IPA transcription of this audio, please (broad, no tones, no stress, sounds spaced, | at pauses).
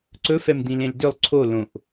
ǀ ɵ f ɛ m d̪ ĩ l ẽ l d ʏ lˠ ǀʰ o l õ ʔ